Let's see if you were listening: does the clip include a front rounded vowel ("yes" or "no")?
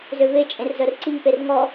yes